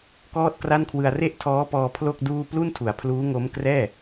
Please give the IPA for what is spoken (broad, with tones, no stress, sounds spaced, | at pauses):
k ɔː˥˩ t̚ k r a˥˩ n kʰ w ɯ˧ a̯ r e˥˩ ʔ tʰ ɔː˦˥ p ɔː˧ pʰ l o˥˩ k̚ d uː˥˩ p l u˥˩ n tʰ u˩˦ a̯ pʰ l uː˦˥ ŋ o˦˥ m k r ɛː˥˩